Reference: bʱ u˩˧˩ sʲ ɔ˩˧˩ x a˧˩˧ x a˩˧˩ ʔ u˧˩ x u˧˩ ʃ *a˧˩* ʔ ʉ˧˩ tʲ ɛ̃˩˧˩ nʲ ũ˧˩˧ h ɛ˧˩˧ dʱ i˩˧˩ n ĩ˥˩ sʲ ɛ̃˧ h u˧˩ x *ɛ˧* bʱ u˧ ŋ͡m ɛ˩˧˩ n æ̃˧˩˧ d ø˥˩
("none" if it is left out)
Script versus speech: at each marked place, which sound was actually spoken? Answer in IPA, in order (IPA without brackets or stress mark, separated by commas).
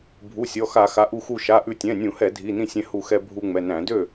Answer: a˩˧˩, ɛ˧